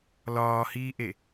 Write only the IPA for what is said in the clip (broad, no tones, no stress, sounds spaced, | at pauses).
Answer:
l ɒː h iː ʔ e